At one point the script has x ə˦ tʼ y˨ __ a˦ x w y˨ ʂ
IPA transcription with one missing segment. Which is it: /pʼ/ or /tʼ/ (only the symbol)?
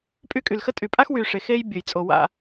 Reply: pʼ